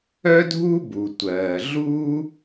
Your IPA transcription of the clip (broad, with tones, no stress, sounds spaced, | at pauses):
œ˥ dʱ u˥ b u˩ tʷ ɜː˩ ɮ u˥